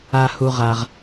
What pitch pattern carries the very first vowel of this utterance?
high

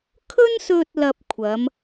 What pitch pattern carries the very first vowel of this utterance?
high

